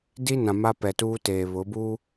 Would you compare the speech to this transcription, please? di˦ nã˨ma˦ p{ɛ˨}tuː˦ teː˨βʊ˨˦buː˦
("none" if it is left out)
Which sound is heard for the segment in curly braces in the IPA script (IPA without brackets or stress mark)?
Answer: ɛ˨